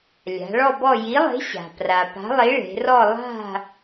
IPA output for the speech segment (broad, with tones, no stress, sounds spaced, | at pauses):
lʲ a̤˩˧ ɭ ɔ˦˨ b ɔ˦˨ j i˨˥ lˠ e̤˨˥ ɕ a̤˩ p r a˩ p a̤˨˥ lˠ i˨˥ ɭ e̤˩˧ r ɔ˦˨ lˠ a̤˦˨